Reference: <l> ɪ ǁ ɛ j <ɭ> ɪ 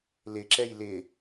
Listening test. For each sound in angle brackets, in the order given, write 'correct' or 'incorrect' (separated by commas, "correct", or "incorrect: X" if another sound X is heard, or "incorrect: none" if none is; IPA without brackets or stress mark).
correct, incorrect: l